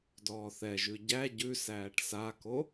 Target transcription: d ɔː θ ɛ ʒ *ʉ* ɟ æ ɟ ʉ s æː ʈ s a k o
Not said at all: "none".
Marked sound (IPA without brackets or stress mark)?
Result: ʉ